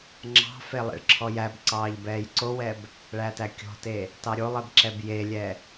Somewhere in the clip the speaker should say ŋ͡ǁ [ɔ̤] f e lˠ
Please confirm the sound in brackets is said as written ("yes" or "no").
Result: no